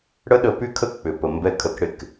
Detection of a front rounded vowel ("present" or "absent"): present